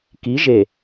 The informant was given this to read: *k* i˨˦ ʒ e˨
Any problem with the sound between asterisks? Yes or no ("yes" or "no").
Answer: no